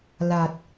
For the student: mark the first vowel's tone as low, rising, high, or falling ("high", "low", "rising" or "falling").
low